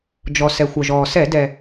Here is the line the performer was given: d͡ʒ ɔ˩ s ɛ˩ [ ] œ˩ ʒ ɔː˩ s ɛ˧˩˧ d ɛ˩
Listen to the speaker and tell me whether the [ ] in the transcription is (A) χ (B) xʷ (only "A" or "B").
B